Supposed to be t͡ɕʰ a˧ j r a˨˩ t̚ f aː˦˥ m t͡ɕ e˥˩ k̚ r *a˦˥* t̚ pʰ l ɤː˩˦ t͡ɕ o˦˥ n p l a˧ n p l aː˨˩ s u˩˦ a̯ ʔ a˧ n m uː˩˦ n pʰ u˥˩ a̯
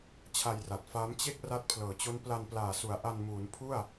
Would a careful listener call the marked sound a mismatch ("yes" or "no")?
no